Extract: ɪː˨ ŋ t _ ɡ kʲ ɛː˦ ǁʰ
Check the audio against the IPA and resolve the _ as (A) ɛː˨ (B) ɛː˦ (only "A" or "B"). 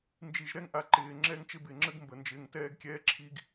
B